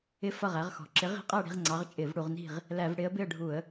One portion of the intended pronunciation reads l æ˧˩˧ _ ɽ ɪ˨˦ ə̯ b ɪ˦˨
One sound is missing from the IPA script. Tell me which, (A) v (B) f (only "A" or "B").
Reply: A